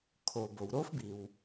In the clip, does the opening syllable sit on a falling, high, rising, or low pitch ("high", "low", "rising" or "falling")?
low